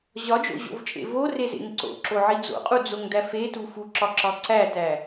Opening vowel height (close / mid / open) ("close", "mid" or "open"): open